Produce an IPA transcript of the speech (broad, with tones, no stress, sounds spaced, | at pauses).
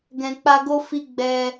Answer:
ɡ ɛ̃˨ k͡p a˧ ɡ o˦ f i˧ ɡ͡b ɛ˧